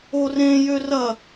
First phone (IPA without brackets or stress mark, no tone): o